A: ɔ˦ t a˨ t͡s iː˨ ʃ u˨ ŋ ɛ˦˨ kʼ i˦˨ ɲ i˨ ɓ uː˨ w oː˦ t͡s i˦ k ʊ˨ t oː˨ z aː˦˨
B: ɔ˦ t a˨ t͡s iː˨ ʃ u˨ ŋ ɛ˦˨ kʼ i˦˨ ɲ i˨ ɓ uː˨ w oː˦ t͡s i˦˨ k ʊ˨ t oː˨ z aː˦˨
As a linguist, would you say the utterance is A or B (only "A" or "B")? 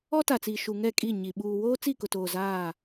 B